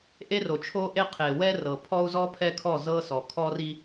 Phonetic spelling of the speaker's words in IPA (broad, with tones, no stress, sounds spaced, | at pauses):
ʔ e˦ r o˨ t͡ʃʰ o˦ ʔ e˦ qʰ e˨ w ɛ˦ r ɤ˨ pʰ ɔ˦ u̯ z ɔ˦ pʰ ɛ˦ kʰ ɔ˦˨ z ɤ˦ s ɔ˨ kʰ ɔ˦ r i˦